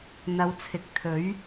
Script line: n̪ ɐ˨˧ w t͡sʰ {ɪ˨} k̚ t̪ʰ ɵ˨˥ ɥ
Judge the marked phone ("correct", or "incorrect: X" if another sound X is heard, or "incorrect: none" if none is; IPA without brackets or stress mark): correct